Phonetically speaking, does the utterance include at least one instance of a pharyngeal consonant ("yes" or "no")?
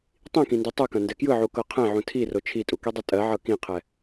yes